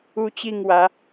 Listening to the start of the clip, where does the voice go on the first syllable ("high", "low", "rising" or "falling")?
high